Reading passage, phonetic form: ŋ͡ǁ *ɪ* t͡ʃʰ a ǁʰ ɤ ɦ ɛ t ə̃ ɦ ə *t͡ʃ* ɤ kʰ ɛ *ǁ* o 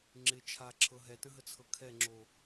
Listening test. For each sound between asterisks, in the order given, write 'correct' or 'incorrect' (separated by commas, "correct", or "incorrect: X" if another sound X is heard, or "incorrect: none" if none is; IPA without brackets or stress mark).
correct, incorrect: t͡sʰ, incorrect: ŋ͡ǁ